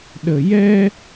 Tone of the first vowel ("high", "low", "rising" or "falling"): low